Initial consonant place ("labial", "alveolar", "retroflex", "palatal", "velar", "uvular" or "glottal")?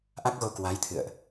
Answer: glottal